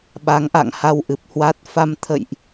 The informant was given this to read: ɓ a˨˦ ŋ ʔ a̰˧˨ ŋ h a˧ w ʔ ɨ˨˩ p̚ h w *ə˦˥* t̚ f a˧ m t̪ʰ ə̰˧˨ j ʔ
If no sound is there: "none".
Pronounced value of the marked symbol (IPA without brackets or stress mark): a˦˥